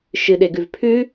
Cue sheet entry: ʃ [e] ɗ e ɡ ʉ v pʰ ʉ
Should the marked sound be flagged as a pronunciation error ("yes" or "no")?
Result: yes